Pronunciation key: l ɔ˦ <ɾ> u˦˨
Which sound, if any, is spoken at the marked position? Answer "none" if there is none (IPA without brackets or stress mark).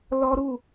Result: ɾ